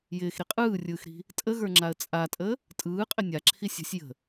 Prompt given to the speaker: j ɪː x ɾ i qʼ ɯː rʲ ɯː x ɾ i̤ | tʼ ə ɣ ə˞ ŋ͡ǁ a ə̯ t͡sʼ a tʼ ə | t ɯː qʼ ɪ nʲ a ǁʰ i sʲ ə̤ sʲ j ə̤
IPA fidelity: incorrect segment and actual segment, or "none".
t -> tʼ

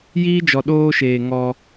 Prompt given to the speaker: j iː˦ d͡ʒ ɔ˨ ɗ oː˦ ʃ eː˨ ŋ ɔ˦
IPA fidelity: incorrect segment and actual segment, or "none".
none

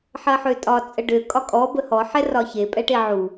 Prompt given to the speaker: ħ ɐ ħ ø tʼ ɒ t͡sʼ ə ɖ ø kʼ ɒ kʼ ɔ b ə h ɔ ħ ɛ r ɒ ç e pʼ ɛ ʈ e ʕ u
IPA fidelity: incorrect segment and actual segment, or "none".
none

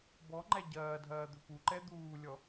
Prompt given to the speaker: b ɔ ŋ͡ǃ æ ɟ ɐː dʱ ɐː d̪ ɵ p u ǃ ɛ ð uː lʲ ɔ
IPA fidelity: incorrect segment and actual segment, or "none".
ð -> d̪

